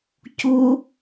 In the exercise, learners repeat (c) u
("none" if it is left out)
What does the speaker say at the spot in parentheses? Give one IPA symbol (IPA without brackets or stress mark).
c